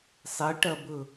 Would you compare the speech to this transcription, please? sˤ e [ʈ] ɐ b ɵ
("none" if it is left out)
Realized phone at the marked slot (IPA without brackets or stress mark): ʈ